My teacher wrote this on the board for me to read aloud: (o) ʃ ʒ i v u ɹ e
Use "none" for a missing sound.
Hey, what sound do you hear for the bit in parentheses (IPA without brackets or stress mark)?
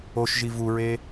o